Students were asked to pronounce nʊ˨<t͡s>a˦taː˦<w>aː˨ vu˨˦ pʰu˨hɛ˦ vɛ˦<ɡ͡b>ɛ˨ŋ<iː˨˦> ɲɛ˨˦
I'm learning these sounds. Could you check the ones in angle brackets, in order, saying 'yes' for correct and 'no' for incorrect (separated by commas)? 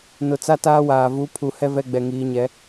yes, yes, yes, yes